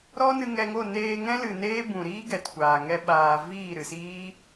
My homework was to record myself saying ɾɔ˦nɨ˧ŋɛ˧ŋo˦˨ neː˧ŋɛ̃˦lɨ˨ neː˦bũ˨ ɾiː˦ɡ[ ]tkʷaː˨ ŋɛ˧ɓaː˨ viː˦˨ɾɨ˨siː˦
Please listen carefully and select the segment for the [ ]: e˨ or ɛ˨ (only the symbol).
ɛ˨